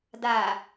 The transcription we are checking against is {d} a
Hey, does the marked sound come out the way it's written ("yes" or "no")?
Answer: yes